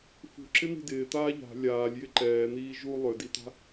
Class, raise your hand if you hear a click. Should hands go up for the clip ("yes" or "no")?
yes